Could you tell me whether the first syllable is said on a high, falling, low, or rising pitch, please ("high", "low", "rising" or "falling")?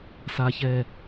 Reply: low